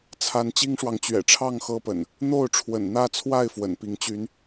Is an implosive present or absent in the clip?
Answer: absent